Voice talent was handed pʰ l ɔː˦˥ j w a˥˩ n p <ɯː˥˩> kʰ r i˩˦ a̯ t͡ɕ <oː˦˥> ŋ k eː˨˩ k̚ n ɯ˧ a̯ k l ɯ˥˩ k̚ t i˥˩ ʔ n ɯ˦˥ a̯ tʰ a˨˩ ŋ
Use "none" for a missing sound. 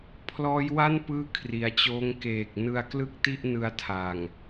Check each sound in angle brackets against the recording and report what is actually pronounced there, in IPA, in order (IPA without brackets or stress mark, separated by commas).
ɯː˥˩, oː˦˥